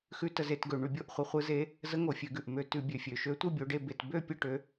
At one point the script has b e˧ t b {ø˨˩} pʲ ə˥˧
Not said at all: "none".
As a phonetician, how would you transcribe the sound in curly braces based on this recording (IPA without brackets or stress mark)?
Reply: ø˥˧